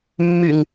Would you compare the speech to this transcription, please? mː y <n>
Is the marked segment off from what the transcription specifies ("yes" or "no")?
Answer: yes